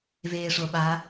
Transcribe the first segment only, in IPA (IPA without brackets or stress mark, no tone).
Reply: v